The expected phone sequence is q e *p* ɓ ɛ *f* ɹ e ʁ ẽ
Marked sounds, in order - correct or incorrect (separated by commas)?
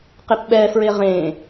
correct, correct